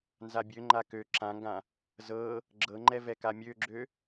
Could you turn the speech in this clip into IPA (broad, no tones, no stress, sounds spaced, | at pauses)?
n z a bʲ ø ŋ͡ǃ a k ø ǁ ã ŋ ɡ ã | z ɤ | ɡ͡ǁ ɤ ŋ͡ǃ ɛ v ɛ k a mʲ ø ɡ͡ǁ ø